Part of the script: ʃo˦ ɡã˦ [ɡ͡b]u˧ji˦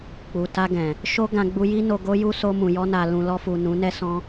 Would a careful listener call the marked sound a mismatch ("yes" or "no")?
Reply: no